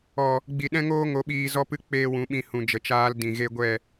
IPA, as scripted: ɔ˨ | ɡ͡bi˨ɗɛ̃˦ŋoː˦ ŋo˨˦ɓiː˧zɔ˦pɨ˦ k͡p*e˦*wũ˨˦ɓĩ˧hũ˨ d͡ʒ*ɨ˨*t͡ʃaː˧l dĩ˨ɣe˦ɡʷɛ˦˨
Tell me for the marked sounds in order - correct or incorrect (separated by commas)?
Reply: incorrect, incorrect